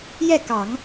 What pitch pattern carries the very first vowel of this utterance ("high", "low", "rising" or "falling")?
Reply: falling